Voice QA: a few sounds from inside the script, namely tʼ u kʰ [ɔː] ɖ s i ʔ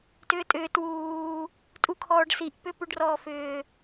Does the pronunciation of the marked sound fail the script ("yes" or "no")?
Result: no